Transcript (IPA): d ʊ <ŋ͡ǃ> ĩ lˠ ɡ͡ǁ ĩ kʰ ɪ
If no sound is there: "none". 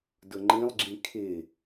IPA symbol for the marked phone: ŋ͡ǃ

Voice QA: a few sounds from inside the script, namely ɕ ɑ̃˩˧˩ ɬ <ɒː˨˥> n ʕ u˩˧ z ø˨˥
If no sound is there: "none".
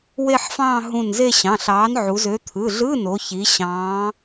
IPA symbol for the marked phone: ɑː˨˥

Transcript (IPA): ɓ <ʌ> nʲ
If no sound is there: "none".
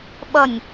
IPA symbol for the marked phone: ʌ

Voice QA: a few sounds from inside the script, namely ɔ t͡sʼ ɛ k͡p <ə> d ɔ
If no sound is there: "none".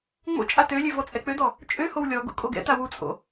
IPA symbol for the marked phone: ø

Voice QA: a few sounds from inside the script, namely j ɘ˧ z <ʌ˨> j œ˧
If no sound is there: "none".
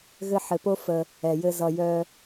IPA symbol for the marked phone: ʌ˨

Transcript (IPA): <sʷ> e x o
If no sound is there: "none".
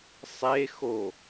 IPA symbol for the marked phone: sˤ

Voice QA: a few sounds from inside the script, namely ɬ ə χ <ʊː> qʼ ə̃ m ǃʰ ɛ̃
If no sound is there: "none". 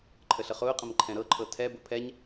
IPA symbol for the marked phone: ʊː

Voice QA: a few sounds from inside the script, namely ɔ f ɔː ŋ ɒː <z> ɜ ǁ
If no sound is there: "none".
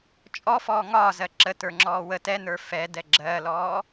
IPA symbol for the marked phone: z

